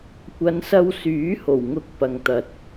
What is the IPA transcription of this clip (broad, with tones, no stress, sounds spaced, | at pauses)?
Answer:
kʷ ɐ˨˧ n s ɐ˧ w s yː˨˥ h o˨˩ w ŋ ʊ˨ k̚ p ɐ˨ ŋ t̪ ɐ˨ t̚